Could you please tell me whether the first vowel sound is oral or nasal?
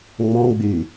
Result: nasal